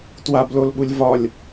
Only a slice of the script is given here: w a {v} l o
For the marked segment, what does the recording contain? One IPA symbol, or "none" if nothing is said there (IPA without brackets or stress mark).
b